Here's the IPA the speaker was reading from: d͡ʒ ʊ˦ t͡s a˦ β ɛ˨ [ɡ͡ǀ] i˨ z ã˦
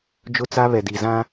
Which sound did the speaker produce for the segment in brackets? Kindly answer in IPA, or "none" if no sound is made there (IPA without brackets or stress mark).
d